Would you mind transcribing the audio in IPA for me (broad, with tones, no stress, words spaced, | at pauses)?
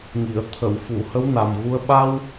ŋi˨˩˨ə̯ t̪ʰə˨˩˨wfu˨˩˨ hə˧˥wna˨˩mɣu˧ə̯ ɓa˧w